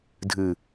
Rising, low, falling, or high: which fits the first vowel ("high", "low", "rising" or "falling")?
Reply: low